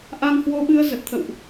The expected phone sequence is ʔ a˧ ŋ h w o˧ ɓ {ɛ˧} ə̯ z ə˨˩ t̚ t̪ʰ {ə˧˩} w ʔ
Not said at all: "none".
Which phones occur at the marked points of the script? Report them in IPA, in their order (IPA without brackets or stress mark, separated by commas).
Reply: ɨ˧, ə̰˧˨